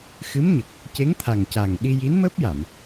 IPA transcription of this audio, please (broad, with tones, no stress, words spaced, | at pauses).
xɨ˧˥mɲə˨˩k̚ | ce˧˥ŋt̪ʰa˨˩ŋca˨˩ŋ ɗi˧ji˧˥nməː˦˥p̚ja˨˩˨m